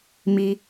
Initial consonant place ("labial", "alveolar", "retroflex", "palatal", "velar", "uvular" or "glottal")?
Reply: labial